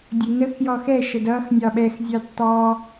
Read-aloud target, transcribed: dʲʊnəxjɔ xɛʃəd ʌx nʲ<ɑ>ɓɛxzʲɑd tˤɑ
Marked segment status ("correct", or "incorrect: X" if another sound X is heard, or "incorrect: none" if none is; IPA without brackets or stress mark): correct